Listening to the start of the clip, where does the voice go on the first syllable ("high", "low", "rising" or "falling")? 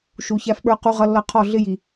low